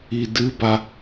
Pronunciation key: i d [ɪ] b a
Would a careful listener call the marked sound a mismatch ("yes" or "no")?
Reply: yes